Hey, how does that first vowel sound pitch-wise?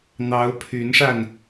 rising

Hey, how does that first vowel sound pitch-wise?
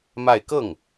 falling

